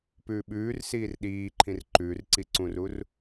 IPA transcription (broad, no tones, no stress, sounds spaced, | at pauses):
p ʉː ɓ ʉː r s iː r ɗ iː ǃʰ ĩ r ǃ ʉː r ǀ i ǀ ũ r u r